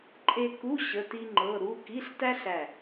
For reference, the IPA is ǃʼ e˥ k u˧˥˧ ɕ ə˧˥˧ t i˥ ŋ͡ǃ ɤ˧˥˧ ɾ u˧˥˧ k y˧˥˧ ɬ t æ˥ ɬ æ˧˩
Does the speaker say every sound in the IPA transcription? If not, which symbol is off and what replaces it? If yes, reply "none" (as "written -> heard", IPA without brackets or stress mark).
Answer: y˧˥˧ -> i˧˥˧